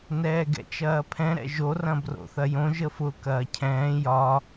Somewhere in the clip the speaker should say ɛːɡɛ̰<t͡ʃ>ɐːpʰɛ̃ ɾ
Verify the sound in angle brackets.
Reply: correct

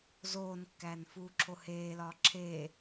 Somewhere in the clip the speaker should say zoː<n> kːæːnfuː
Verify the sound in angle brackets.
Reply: correct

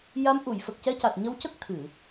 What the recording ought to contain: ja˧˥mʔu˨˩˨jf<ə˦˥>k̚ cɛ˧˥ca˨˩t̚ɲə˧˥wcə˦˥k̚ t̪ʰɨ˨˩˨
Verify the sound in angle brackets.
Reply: incorrect: ə˨˩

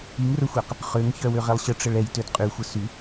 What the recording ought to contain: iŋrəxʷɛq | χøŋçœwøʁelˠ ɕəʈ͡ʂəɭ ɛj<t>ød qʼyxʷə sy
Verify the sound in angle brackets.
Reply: correct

